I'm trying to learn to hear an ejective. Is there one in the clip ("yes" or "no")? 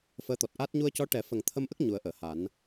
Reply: no